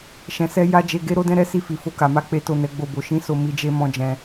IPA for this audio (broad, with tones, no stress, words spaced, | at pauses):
ʃɛ̃˨sɛ˧ ja˦d͡ʒe˧ ɡe˦ɾo˦dɛ̃˦ ɾɛ˦si˦˨fi˨ fo˧ka˨ma˧ k͡pe˦to˦˨ nɛ˨˦ɡ͡bo˦˨bo˨˦ ʃĩ˦so˧ mi˦d͡ʒe˦ mɔ̃˧ d͡ʒɛ̃˧